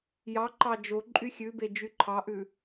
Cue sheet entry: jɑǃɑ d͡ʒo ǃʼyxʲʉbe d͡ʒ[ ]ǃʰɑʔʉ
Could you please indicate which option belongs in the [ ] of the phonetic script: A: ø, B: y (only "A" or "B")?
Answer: B